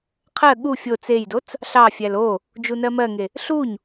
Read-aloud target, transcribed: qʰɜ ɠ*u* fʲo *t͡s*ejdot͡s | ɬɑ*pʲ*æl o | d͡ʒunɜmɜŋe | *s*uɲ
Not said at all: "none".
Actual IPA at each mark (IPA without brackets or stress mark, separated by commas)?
u, t͡s, fʲ, ɬ